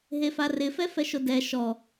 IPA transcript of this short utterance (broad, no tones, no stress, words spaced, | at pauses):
ɦefarɪ fɛfɛʃodɛ ʃɔ